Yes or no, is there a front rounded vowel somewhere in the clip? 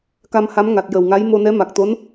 no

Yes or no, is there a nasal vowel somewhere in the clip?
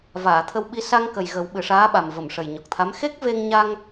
no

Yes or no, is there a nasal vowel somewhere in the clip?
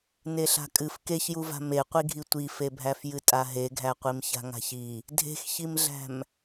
no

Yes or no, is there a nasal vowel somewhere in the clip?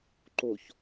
no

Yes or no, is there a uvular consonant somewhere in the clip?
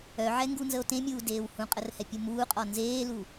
yes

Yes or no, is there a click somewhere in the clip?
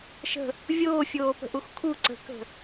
yes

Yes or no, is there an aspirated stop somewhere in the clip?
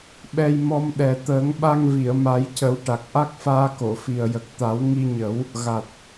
no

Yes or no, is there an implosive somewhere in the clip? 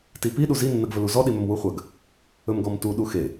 yes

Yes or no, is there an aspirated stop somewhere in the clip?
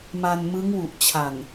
yes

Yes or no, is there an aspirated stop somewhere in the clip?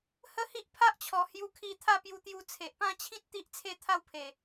yes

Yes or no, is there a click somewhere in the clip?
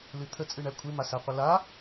no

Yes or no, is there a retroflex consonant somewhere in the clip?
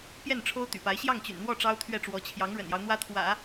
yes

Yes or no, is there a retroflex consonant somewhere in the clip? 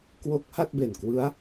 no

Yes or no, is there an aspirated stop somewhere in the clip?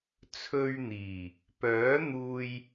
yes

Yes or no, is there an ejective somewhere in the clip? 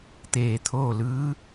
no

